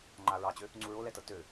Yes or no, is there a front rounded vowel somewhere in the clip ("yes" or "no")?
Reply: yes